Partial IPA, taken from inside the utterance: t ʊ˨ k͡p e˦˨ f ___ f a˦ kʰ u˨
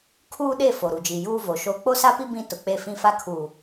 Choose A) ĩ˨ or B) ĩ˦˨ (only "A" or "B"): B